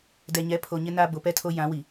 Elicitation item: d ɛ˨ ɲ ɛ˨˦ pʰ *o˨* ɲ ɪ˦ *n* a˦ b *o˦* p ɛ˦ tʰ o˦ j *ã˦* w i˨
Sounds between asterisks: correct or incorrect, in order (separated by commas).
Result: correct, correct, incorrect, incorrect